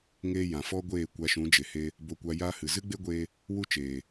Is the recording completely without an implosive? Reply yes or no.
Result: yes